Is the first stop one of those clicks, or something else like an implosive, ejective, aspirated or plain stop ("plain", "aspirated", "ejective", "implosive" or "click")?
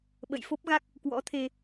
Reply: implosive